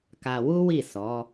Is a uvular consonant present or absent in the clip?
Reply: absent